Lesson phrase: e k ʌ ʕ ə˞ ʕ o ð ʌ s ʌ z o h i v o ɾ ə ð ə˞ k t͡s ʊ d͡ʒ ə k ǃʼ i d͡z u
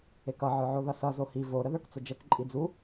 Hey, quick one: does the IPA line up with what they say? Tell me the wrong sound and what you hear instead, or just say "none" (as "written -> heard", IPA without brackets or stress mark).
none